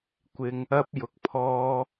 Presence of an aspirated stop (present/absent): present